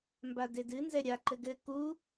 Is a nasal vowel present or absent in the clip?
absent